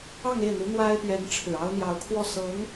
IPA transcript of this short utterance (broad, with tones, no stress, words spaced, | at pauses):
ɑ˥˧ŋe˥˩ɪ̯n̪u˧˥ n̪wa˥ɪ̯pɥɛ˧˥n ʈ͡ʂʰɻ̩˨˩ɑ˥ʊ̯ n̪jɑ˧˥ʊ̯kʰwɔ˥˩sɤ˧˥ŋ